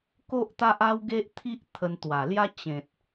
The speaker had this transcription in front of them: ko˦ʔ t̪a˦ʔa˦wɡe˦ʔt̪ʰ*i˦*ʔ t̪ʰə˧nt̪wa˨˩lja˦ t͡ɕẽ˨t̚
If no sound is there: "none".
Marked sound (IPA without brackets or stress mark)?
i˦